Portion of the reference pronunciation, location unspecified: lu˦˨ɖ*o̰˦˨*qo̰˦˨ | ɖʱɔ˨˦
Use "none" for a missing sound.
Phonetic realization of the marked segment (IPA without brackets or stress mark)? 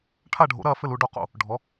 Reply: o˦˨